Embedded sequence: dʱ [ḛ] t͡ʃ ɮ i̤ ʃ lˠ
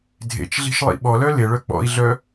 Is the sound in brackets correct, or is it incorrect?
correct